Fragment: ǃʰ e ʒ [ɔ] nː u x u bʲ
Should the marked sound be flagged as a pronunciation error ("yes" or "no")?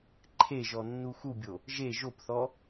no